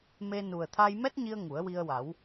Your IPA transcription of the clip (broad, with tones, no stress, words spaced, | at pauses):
me˧ nu˨˩ə̯t̪ʰa˧jmɛ˦˥t̚ɲi˧ə̯ ŋu˨˩˦ə̯wi˧ə̯wa˨˩˦w